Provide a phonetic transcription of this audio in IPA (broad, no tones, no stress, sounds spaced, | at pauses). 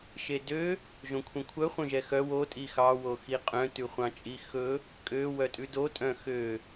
ʃ e d ø | ʒ õ kʷʰ œ̃ kʷʰ œ χʷ œ̃ ʒ ɛ x œ w o tʼ i x ɑ w o x i qʼ œ̃ t ʉ χʷ ɑ̃ t͡ʃʼ i x ɵ | kʼ ø w œ tʼ ʉ d o tʼ œ̃ x ø